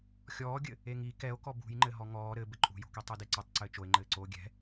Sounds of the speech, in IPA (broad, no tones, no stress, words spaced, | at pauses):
xʲɔːɡʲɘ | eŋi kɛo̯ kɔbṳjŋ͡ǃɘ ɦɔŋɔː ɾɘ bɘǃʼṳjo̤ki tˤedeǀɘtˤ ǀɘːt͡ʃoe̯ŋ͡ǃɘːǀoː ɡʲɛ̤